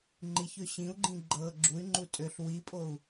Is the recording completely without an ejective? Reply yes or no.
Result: no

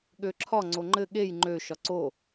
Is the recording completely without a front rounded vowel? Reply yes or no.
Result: no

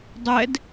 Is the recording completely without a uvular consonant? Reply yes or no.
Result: yes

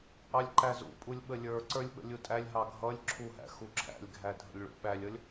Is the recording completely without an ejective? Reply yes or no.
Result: no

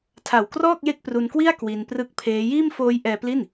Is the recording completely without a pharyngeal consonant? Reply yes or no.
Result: yes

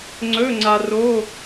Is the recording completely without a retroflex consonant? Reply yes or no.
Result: yes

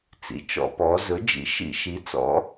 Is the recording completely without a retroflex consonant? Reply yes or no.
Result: yes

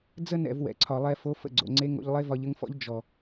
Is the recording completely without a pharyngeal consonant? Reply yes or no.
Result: yes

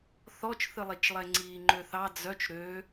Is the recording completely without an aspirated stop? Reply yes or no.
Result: yes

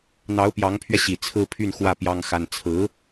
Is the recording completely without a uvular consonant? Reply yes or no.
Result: yes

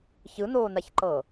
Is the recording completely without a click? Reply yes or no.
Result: no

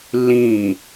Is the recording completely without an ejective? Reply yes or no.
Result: yes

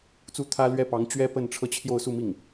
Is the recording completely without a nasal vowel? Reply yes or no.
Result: yes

